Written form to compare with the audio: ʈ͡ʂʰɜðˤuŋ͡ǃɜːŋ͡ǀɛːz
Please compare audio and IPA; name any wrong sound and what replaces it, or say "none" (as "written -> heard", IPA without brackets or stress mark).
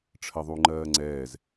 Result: none